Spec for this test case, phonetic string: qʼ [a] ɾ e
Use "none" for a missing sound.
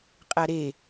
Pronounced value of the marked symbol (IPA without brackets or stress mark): a